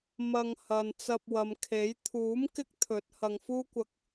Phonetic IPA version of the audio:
m ɐ˧ ŋ h ɐ˨ n t͡s ɐ˧ p̚ w ɐ˨ m kʰ e˨˥ j t̪ʰ uː˨˥ m k ɪ˥ k̚ t̪ʰ ɵ˨˥ t̚ h ɐ˨ ŋ f uː˥ kʷ ɐ˧ k̚

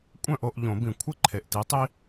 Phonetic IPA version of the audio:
kʷʼ œ̃˥˨ ʔ o˥˨ ʔ ʎ õ˨˩˦ b ĩ˨˩˦ kʷʰ ɪ˥˨ ǃʰ e˨˩ ʔ t i˨˦ tˤ i˦

